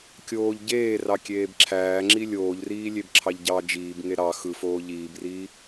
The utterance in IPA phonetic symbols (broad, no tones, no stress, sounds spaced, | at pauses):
kʲ oː ʎ ɟ eː r ɑ kʲ eː b ǁʰ æː ŋ͡ǁ i lʲ oː ʎ r iː lʲ e b ǁʰ ɑ ʎ ɟ ɑ d͡ʒ iː b ŋ e ɾ ɑ x ɯ f oː ʎ iː b r iː